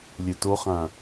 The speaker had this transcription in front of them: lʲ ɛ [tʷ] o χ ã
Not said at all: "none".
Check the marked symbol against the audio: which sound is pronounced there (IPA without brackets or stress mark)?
t